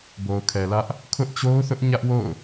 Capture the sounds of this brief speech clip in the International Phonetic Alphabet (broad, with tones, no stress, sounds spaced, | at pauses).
b o˨ ʊ̯ kʰ ɛ˨ l ä˦ ʔ | kʰ ʊ˦ ʔ t͡ɕ o˦ ʊ̯ θ ʊ˦ ʔ ɲ ä˦ ʔ w o̰˦˨ ʊ̯